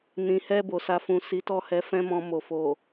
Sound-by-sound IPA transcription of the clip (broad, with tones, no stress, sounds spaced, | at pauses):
n ĩ˨ h ɛ˧ b o˨ s a˨ f ũ˨ s i˨˦ t ɔ˦˨ h ɛ˨˦ f ɛ̃˦ m ɔ̃˧ m o˨ f o˨